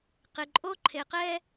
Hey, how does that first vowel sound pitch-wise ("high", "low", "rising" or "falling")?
low